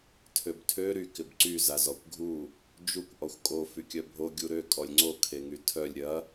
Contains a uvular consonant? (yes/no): no